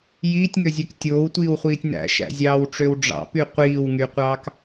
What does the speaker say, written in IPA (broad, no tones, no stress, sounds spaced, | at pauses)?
j iː tʲ ŋ ø zʲ ø k tʲ oː w tʷ iː w χʷ iː tʲ n æ̰ ʃ æ̰ zʲ ɑː w ʈ͡ʂ ø w ɖ͡ʐ ɑ̰ p y qʷ iː w ŋ y qʷ ɑː k